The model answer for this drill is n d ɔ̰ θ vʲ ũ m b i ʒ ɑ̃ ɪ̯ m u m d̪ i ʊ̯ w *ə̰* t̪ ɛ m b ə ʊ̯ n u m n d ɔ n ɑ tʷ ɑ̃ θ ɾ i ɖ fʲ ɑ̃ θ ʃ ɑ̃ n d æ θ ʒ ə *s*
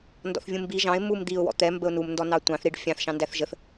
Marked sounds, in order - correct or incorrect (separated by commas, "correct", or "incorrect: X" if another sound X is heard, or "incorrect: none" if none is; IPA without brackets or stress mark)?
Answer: incorrect: ɔ̰, incorrect: θ